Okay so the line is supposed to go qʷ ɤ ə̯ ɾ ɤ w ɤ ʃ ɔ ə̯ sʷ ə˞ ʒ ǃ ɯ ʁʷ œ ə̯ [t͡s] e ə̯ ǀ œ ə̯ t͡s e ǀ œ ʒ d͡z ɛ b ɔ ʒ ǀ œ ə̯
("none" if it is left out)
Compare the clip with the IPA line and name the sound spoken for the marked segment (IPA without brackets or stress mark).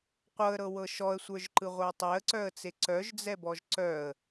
tˤ